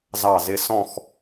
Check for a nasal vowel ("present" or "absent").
present